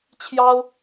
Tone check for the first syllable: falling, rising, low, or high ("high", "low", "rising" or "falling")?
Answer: high